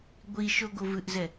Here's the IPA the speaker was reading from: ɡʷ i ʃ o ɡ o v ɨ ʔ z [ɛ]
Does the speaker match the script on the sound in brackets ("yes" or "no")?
yes